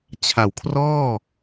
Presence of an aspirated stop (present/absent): present